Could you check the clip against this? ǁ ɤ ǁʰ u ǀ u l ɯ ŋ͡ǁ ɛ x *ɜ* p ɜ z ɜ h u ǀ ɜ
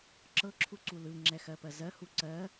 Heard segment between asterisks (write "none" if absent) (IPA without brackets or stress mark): ɜ